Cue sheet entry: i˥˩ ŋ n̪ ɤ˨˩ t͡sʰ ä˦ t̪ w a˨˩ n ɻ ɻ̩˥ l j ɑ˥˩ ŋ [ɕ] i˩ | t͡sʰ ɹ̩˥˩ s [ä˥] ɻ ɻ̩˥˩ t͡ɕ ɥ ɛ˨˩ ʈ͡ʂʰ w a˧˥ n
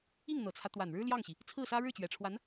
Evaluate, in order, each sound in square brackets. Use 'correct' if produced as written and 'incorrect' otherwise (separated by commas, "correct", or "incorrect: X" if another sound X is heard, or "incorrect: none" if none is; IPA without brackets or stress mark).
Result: correct, correct